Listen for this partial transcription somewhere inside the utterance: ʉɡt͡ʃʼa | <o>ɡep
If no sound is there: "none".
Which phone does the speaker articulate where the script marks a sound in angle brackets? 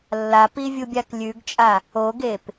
o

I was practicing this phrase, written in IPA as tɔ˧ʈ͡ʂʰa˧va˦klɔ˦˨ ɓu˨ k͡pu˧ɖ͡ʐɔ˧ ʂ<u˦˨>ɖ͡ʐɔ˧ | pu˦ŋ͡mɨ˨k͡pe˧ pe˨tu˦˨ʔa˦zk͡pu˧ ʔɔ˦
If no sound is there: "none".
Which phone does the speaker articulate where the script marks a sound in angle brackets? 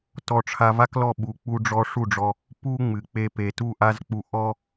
u˦˨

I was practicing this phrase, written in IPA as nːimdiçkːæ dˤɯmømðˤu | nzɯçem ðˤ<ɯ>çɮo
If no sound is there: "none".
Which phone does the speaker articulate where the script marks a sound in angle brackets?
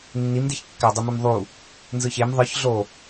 ɯ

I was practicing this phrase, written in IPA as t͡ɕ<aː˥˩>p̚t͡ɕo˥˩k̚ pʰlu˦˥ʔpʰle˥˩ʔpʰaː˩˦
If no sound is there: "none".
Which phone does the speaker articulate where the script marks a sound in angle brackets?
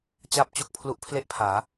aː˥˩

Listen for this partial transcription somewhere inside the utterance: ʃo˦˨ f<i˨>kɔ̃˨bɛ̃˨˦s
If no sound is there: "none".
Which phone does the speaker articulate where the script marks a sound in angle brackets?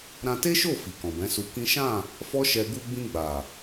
i˨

